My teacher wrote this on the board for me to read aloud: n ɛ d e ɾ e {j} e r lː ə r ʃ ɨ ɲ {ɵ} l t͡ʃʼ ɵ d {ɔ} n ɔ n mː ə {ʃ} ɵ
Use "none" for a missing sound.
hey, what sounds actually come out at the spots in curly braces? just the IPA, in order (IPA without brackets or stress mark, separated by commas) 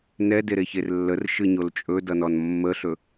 ç, o, ʌ, ɬ